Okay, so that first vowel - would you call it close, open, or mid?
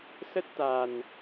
mid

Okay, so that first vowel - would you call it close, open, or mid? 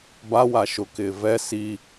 open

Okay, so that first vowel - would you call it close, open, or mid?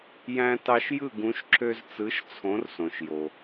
open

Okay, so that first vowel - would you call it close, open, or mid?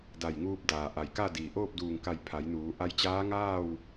open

